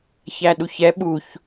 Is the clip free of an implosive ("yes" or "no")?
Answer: no